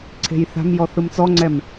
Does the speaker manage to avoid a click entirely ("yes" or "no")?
no